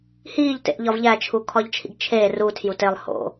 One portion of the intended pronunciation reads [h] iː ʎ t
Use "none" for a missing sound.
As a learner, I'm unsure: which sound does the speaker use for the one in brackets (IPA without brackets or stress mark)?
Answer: h